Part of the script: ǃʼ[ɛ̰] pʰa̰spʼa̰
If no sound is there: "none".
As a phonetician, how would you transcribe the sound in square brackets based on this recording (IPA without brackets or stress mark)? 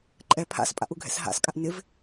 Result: ɛ